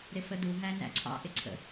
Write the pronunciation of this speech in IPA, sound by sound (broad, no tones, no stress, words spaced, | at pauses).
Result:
ɾɪfədu ɦænæ̰ǀʰɑ̰ ʔɪǀʰə̰